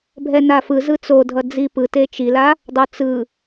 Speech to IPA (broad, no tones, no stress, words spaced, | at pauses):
bʱɛnafɯ zɯt͡so dʱʌd͡zipɯte t͡ʃila | dˤot͡sɯ